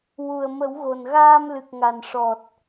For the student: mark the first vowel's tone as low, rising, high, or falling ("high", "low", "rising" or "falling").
low